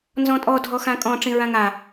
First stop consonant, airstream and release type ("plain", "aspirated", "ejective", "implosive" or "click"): ejective